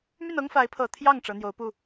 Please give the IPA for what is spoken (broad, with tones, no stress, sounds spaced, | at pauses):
m y˥˩ n ɤ˥ ŋ f a˧˥ ɪ̯ pʰ ɤ˨˩ t̪ʰ j ɑ˥˩ ŋ ʈ͡ʂ ɤ˧˥ n̪ j o˧˥ ʊ̯ p u˥˩